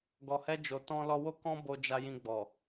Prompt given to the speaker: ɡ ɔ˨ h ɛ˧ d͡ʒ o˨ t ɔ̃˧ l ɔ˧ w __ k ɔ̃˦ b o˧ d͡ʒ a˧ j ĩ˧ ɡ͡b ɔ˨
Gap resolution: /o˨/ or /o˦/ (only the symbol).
o˦